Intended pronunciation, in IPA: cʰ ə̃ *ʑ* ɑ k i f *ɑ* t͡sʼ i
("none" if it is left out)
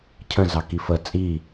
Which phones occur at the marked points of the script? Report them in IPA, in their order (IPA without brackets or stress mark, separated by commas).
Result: z, ə